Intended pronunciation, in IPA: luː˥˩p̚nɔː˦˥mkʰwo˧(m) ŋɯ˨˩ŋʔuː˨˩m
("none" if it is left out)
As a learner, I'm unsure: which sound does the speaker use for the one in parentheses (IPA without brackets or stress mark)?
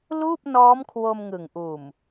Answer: m